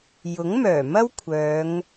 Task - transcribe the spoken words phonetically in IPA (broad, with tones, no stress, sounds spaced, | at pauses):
j ʊ˨˥ ŋ m œː˨˩ m ɐ˥ w kʷʰ œː˨˧ ŋ